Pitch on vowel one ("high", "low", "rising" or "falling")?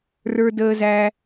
low